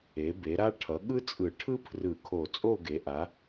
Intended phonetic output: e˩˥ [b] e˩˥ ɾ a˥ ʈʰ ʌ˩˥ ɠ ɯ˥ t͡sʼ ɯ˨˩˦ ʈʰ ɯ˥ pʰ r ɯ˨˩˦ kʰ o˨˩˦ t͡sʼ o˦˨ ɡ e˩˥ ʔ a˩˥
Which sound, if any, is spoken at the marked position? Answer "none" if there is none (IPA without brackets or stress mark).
b